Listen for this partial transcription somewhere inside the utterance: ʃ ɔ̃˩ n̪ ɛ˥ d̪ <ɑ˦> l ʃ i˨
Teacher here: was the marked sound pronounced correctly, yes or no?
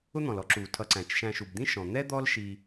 no